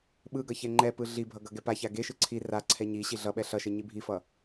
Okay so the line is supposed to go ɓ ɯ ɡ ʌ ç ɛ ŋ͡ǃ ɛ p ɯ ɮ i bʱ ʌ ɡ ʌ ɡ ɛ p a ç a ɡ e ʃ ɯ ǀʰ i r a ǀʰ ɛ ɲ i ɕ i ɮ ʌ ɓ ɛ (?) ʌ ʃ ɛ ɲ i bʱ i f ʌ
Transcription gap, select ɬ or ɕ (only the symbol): ɬ